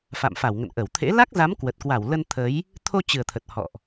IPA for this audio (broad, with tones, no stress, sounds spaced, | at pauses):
f a̰˧˨ m f a˧˩ w ŋ ə̰˧˨ n ʔ ə˧˩ w t̪ʰ ḛ˧˥ l a˦˥ k̚ z a˨˦ m k w ə˨˩ t̚ k w a˧˩ w l ə˧ n t̪ʰ ə˨˦ j | t̪ʰ o˧ t͡ɕ ɨ˨˩ ə̯ t̪ʰ ə˨˩ t̚ h ɔ̰˧˨ ʔ